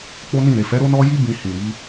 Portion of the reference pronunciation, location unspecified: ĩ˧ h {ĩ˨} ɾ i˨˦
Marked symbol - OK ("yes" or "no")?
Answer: yes